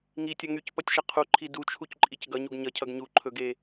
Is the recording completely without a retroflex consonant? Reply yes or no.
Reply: yes